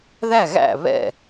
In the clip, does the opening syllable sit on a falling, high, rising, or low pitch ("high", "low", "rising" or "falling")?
falling